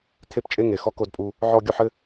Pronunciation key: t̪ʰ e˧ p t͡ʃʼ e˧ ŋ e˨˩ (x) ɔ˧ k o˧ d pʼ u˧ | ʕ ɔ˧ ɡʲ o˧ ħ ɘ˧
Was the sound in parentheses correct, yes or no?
yes